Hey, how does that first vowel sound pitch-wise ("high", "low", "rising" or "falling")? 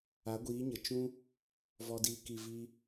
rising